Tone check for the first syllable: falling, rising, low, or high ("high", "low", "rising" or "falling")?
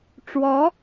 rising